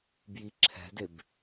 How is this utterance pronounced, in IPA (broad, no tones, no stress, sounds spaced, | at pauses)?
b j i ǁʰ ɛ̤ d e b